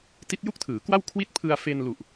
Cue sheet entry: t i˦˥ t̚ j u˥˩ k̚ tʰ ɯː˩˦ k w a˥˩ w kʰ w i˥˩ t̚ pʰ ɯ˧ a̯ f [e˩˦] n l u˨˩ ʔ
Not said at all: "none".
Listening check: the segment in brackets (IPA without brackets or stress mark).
e˧